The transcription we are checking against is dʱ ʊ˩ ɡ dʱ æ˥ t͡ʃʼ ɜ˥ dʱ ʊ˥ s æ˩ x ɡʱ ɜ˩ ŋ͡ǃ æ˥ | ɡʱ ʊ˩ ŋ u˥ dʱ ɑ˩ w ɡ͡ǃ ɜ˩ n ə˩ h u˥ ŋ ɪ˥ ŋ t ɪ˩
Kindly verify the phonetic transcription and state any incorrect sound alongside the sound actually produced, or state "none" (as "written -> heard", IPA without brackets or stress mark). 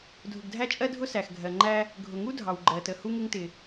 n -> t